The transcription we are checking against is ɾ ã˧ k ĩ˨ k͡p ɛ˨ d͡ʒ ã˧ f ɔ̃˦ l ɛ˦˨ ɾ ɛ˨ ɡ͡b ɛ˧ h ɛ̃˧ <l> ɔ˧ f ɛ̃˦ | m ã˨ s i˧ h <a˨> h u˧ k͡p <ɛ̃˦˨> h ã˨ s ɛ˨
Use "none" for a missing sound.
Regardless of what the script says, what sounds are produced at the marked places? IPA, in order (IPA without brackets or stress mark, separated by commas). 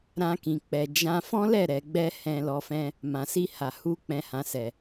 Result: l, a˨, ɛ̃˨